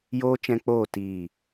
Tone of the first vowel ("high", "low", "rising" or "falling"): high